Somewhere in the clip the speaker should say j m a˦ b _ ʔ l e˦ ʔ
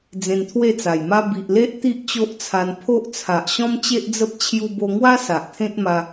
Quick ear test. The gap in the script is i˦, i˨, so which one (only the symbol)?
i˨